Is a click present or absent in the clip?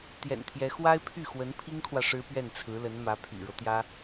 absent